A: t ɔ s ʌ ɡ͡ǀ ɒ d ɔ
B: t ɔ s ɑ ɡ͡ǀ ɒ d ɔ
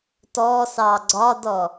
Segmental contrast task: B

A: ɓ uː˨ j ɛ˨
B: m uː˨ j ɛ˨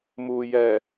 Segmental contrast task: B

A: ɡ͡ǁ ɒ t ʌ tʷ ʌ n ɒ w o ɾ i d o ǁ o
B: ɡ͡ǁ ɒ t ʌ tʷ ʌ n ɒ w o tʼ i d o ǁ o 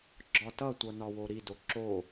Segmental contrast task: A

